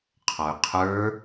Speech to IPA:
qʰ ɔ y̯ qʰ ə˞

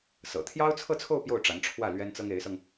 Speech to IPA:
s ɤ̰˨˩ t̪ʰ j ɑ˥ ʊ̯ t͡sʰ ɤ˥˧ t͡sʰ o˥˧ ʊ̯ p j o˥˩ ʊ̯ ʈ͡ʂ a˧˥ n ʈ͡ʂʰ w ä˥˩ l ɥ ɛ˥ n t͡s ɤ˥ ŋ e˧˥ ɪ̯ s ɤ˧ ŋ

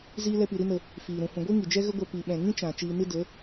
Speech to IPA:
z iː˧ l ɛ˧ p i˨ ɾ i˦ n ə˧ | f iː˨ ɾ ũ˨ h ũ˨ ɡʷ i˦ ŋ i˨ d͡ʒ ɛ˦ ɣ ə˧ ɡʷ ɛ˨ p i˨ ɓ ɛ̃˨ ŋ ĩ˦ t͡ʃ ã˨ t͡ʃ iː˧ n ɨ˦ d ə˨˦

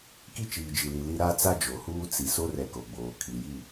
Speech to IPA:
k i˦ t͡ʃ iː˨ d͡ʒ i˨ l i˨ l i˦ ɾ a˦ t͡s a˦ d͡ʒ o˨ h uː˦ t͡s i˨ s o˦ r ɛ˨ k o˨ ɡ͡b oː˨ kʰ i˨ j i˦˨

